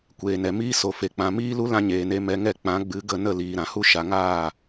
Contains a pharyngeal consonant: no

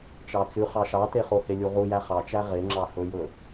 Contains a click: yes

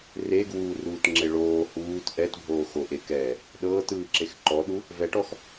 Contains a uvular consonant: no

